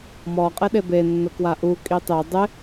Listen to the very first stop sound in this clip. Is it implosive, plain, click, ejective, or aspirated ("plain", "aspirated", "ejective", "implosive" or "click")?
ejective